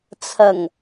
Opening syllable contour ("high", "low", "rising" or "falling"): low